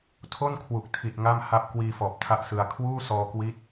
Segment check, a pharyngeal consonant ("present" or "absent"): absent